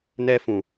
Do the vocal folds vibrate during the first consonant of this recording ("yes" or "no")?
yes